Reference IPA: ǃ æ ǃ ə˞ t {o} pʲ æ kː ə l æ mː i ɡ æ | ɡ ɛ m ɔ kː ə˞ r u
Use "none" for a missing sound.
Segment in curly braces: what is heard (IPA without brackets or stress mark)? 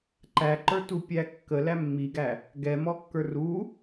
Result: u